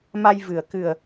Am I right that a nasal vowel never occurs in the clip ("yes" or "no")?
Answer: yes